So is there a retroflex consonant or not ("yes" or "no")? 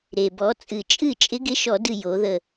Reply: no